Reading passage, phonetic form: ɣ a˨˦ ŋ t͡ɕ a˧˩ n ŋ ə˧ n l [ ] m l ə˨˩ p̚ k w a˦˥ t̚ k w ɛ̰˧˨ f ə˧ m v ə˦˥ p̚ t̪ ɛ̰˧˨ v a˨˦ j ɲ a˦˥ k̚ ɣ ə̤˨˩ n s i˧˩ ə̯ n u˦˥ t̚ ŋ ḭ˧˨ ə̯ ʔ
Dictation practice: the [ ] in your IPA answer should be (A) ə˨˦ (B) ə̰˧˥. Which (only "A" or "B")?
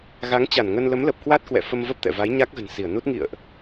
A